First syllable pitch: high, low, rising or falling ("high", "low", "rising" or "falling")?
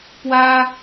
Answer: high